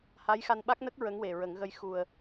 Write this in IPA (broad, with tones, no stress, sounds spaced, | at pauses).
h a˧˥ j x a˧ n ɓ a˦˥ k̚ n ə˦˥ k̚ ɹ ə˧˥ ŋ w e˨˩ ɹ ə˨˩˦ ŋ ɣ ə˧ j x u˨˩ ə̯